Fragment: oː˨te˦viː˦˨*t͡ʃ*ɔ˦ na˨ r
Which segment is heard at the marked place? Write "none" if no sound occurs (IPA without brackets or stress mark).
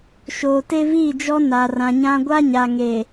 d͡ʒ